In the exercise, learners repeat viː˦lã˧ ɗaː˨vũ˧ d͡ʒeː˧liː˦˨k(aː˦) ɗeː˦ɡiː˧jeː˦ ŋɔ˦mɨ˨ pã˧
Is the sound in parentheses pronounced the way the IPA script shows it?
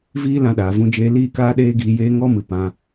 yes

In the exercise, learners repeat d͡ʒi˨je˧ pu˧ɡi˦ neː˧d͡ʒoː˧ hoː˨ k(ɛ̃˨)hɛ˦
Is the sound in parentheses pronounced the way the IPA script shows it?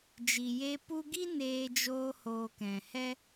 yes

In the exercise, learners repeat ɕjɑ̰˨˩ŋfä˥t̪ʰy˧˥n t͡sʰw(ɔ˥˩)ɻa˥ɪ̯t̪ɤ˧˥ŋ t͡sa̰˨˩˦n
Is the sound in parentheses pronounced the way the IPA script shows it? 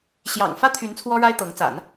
no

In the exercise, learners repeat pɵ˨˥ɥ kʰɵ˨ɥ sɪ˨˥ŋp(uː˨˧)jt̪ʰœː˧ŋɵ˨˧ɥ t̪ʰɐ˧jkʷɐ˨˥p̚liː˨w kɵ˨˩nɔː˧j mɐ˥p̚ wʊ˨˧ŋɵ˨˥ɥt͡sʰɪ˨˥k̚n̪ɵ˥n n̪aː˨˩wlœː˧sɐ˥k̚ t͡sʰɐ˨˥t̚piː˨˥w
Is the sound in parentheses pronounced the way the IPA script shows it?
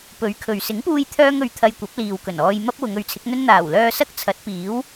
no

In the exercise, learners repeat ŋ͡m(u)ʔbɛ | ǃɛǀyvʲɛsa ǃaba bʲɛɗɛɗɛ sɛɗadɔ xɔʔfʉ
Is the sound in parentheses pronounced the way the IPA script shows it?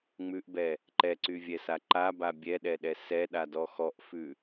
no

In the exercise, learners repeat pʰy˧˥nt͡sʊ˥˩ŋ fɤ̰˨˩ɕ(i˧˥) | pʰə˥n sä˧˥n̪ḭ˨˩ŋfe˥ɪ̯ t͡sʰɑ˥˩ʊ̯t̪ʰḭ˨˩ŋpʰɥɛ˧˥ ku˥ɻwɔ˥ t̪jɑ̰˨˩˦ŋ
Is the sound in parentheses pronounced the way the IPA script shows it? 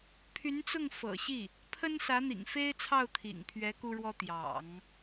no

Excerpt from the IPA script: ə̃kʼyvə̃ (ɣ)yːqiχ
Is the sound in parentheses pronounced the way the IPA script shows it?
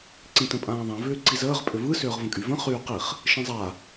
no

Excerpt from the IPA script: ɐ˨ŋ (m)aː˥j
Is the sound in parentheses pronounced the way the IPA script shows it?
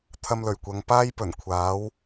no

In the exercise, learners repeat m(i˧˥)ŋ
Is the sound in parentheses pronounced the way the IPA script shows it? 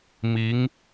yes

